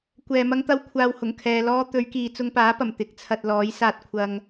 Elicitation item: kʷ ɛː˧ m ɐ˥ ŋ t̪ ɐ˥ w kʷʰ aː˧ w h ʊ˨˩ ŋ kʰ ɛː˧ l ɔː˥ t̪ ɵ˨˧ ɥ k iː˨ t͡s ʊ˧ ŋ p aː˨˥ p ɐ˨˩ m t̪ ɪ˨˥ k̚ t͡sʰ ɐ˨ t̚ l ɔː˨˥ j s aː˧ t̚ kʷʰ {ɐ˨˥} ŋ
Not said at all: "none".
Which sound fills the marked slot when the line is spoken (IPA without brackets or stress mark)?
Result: ɐ˧